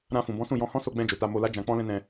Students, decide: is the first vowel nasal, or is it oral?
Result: nasal